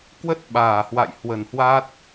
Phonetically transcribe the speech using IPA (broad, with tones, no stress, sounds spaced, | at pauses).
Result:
k w ə˦˥ t̚ ɓ aː˧˩ h w a̰˧˨ j h w ə˧˩ n h w a˦˥ t̚